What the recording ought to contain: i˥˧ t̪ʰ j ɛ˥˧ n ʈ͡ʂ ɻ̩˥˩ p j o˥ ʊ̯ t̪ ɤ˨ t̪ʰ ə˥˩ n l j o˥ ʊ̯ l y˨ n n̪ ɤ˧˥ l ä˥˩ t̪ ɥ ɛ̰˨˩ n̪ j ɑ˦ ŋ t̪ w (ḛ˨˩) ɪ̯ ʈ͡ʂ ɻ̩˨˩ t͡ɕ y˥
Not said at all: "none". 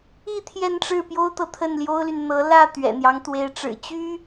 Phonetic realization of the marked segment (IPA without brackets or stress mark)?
e˧˥